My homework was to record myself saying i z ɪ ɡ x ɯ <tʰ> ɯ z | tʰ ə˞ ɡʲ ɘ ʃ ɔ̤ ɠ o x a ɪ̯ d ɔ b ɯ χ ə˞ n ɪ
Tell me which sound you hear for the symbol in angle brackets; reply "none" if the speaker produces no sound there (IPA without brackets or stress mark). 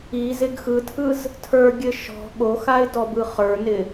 tʰ